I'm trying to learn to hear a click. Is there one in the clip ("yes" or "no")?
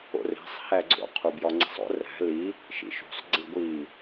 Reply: yes